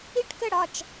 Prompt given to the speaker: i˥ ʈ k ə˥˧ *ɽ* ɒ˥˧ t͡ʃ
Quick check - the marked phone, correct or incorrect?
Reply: correct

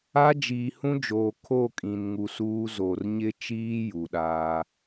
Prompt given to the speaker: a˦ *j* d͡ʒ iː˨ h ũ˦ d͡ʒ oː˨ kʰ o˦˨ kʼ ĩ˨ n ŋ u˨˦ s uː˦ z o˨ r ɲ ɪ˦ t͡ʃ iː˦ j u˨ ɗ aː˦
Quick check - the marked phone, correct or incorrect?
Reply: incorrect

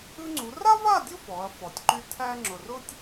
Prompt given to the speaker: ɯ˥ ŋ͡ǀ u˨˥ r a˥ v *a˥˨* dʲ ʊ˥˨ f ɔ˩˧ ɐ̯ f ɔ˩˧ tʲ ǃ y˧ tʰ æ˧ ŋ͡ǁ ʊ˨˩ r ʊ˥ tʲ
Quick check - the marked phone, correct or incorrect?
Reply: correct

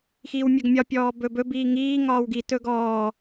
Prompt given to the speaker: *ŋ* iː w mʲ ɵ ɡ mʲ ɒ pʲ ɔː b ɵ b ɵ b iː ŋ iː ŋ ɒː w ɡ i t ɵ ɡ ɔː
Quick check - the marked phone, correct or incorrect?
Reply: incorrect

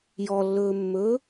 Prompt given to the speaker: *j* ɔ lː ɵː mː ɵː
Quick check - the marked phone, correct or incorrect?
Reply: correct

